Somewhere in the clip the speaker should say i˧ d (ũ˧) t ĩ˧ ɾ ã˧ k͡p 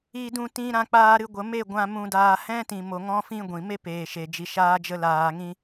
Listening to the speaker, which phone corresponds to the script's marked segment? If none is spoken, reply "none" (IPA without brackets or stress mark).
ũ˧